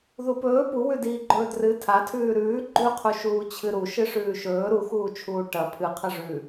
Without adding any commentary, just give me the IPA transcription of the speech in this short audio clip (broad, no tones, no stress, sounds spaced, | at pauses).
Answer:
ð u p ɵː p u w ʉ d iː ɡ͡ǃ ɵː d r ɨ tʰ a tʰ ʉː ɾ ʉː ɡ͡ǃ ʉ qʰ u ʃ uː t͡ɕʰ ɨ ɾ u ʃ ɨ ʂ ʉː ʃ ɵː ɾ u x uː t͡ʃʰ uː ʈ ɐ pʰ ɨ qʰ ɐ ʐ ʉ